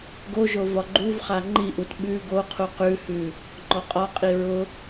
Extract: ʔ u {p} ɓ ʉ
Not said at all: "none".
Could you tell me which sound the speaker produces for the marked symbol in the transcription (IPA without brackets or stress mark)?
t